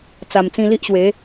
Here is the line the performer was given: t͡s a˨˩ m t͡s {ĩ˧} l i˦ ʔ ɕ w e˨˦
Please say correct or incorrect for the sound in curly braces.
correct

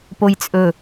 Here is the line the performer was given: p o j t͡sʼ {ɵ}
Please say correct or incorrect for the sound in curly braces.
correct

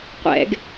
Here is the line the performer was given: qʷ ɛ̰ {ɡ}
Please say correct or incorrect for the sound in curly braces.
correct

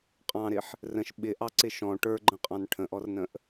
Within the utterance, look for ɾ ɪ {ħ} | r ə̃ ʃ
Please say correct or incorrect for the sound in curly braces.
correct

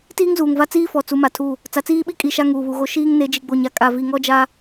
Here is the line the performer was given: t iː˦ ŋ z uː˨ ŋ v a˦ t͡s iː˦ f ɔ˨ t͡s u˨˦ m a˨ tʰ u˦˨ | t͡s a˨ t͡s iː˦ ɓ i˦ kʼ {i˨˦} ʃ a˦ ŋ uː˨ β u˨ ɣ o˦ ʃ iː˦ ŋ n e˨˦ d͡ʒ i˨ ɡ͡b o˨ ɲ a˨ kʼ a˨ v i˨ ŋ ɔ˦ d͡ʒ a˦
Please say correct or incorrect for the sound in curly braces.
incorrect: i˨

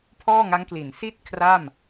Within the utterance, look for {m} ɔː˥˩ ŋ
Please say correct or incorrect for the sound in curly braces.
incorrect: pʰ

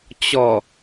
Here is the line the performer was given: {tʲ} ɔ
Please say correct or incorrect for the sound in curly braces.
incorrect: t͡ɕ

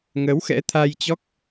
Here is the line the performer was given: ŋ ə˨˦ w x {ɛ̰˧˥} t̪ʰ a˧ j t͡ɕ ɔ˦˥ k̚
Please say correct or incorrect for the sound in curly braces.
correct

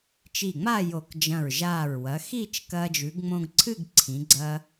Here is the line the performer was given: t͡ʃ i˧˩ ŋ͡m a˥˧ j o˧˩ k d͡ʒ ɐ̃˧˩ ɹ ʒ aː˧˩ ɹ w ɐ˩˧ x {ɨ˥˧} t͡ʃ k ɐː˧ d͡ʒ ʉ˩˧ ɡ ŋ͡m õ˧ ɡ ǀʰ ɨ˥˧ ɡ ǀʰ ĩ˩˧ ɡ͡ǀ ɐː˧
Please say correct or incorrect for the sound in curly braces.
incorrect: i˥˧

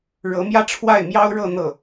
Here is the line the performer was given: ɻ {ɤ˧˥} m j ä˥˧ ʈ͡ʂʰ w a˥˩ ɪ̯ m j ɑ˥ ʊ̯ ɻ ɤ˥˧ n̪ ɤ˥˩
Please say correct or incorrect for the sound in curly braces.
correct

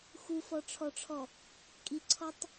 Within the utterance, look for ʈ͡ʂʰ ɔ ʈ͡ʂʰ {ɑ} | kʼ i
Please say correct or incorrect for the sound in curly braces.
incorrect: ɔ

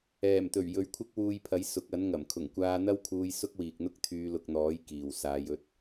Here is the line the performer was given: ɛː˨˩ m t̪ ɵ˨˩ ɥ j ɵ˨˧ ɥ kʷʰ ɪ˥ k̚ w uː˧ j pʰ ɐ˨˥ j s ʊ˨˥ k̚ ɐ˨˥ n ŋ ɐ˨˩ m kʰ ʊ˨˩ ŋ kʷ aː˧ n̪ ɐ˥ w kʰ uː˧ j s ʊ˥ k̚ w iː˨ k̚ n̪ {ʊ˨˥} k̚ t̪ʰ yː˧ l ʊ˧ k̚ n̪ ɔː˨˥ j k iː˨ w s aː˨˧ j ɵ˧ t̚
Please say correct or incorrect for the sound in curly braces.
incorrect: ʊ˥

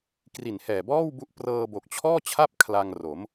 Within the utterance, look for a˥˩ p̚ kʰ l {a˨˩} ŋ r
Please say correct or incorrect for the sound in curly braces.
incorrect: a˧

